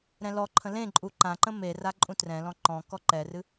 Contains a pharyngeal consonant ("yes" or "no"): no